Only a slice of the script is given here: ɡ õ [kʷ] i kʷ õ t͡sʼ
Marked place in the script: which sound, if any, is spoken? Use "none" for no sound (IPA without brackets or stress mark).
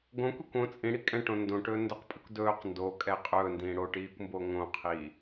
kʷ